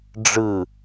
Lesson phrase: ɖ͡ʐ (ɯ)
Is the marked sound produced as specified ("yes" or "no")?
yes